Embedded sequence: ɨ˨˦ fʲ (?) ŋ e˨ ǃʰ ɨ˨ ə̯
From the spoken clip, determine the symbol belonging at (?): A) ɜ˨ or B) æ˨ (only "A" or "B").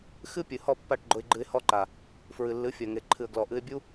A